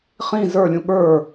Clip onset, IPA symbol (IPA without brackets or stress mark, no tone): χ